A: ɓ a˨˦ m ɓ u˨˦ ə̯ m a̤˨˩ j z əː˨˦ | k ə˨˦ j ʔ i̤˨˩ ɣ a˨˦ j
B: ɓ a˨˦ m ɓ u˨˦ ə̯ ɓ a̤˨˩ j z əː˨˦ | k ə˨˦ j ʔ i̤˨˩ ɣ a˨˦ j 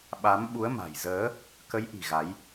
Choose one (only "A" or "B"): A